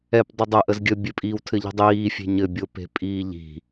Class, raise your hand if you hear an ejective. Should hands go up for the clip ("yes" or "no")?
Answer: yes